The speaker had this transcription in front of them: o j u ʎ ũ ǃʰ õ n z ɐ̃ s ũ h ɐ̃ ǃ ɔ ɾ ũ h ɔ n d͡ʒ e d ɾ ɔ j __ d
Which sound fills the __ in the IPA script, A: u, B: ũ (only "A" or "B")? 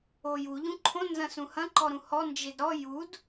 A